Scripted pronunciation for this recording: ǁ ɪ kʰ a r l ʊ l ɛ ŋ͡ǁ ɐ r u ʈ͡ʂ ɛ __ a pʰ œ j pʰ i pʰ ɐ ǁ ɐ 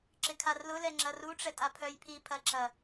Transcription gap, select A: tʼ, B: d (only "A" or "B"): A